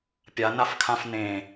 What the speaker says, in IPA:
pʲ a n a f kʰ ã f n ẽ

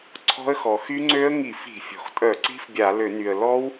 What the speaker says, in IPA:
ǀʰ ɔ̤˦˥ ə̯ x ɔ˩ x y˦˥ ŋ͡ǀ ø˦˥ ə̯ ŋ i˧˩˧ f i̤˧˩˧ fʲ ɔ̤˩ x tʼ œ˧˩˧ ǀ i̤˦˥ f bʲ a˧˩˧ l ø˧˩˧ n y˩ ə̯ l ɔ˦˥ w

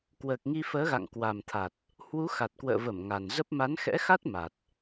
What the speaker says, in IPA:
k w əː˨˩ k̚ ŋ i˧ f əː˨˦ ɣ a̰˧˨ ŋ k w a˨˩ m t̪ʰ a˨˩ t̚ | h w u˨˦ x a˨˩ t̚ k w ə̰ː˧˨ v ə˧˩ m ŋ a˨˩ n z ə˦˥ p̚ m a˨˦ n x ɛ̰˧˥ x a˦˥ t̚ m a˨˩ t̚

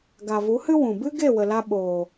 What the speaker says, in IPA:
ɡ a˨ v u˨˦ h ɨ˦ w ũ˨ b ɨ˦ ɡ e˦˨ w ə˨ l a˧ ɓ oː˨

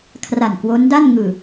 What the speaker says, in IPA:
kʰ r a˨˩ n k w o˦˥ n d a˥˩ n ŋ ɯː˨˩

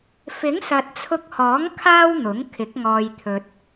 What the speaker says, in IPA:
f ɪ˨˥ ŋ s ɐ˨ t̚ t͡sʰ ʊ˧ k̚ h ɔː˨˥ ŋ kʰ aː˥ w n̪ ʊ˨˥ ŋ kʰ ɪ˨˥ k̚ ŋ ɔː˧ j t̪ʰ ɵ˧ t̚

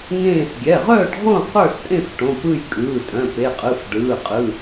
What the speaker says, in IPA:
ŋ ẽː˥˨ s ɡʲ ɛ˩˧˩ ʁ œː˥˨ ɖ ʁ õ˥˨ q ə˞˥˨ s tʼ ẽ˥˨ f ʈ õ˩˧˩ p ɯ˥˨ j kʼ ɯː˩˧˩ tʼ œ̃˩˧˩ p e˩˧˩ qʼ ɯ˩˧˩ f ɖ ɯː˩˧˩ qʼ ɯ˩˧˩

